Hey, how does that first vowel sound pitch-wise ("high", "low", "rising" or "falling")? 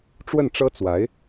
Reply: falling